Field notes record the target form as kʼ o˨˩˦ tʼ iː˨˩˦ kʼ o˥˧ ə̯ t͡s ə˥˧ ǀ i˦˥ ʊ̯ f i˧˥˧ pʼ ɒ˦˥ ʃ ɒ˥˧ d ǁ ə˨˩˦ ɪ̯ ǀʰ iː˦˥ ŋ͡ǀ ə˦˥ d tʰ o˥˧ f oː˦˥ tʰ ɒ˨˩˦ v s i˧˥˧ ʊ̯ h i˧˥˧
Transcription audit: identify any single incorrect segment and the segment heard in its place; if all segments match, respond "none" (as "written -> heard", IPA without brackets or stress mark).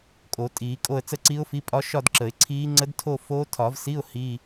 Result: none